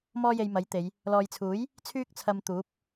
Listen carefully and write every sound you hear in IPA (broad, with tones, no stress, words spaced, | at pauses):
mɔː˥je˧jmɐ˨˥jt̪e˨˧j | lɔː˨jt͡sʰuː˨˥j | t͡sʰyː˥k̚t͡sʰɐ˧mt̪uː˨˥p̚